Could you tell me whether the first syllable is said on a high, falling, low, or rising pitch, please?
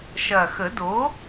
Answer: low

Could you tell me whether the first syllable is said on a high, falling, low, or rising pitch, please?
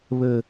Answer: low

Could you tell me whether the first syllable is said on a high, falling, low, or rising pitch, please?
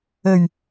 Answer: low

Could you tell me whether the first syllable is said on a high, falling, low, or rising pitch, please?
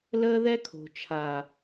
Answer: high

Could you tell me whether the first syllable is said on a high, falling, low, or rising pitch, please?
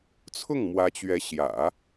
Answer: falling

